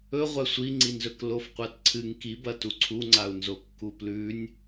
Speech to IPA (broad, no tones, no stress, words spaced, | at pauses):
ɵ ʁʷasʷiŋ͡ǀinzɵk lofqʷatǀʰɨŋ kibɐ tuǀʰuŋ͡ǀau̯nzo kːuplʉnʲ